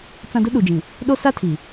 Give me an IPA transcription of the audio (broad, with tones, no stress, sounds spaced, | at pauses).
t͡s ã˦ d ʊ˦ ɗ u˨ d͡ʒ ĩ˨ | ɗ o˦ s a˦ tʰ i˨